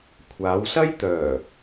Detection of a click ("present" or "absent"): absent